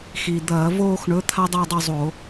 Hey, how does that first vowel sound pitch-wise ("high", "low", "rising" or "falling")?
low